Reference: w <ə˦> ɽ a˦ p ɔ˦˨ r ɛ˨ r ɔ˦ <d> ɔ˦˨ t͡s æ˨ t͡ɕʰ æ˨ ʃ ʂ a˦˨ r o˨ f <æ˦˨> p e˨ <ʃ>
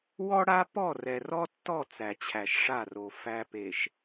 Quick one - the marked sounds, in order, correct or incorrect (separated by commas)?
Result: incorrect, incorrect, incorrect, correct